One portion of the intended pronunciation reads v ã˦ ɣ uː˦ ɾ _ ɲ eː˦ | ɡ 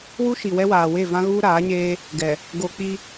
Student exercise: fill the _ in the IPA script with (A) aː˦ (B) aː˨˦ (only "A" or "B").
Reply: B